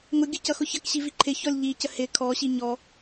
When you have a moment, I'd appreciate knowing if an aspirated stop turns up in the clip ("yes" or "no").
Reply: yes